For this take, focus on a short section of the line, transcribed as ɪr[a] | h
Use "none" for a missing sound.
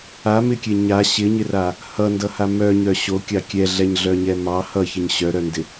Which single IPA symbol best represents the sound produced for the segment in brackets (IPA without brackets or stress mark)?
a